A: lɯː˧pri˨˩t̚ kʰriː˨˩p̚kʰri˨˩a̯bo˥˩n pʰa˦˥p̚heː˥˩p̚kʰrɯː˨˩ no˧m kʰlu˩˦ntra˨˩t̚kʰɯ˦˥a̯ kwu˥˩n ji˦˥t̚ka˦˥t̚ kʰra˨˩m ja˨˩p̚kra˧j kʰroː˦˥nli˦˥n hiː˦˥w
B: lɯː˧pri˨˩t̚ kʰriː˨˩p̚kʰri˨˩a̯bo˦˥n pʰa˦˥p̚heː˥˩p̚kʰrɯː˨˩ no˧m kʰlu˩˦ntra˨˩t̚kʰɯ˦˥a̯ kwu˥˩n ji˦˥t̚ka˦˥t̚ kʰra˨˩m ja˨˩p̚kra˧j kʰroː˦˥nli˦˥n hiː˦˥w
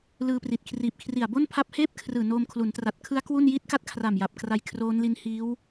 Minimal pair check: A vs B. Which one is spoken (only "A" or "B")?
A